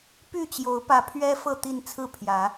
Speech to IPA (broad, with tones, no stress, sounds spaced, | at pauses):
p y˥˨ t͡ɕ j o˨˦ ʊ̯ p ä˨˦ pʰ ɥ ɛ˦ f ɤ˥˨ t̪ i˥˨ n t͡sʰ ɹ̩˥˨ pʰ j ä˨˦